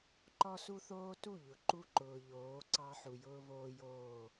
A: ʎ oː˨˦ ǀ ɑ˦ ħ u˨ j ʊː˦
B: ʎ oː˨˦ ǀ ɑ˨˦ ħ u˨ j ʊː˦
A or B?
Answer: A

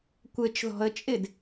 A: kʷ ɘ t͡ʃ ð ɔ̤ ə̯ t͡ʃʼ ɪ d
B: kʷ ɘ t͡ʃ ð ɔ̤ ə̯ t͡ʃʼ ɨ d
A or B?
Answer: A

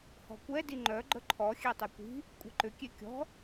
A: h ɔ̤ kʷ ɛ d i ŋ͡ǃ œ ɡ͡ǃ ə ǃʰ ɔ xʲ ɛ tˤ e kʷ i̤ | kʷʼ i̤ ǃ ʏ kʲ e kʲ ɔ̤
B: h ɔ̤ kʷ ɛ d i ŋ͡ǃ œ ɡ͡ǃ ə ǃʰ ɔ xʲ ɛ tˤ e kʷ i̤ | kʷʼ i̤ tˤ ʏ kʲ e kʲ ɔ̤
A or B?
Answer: A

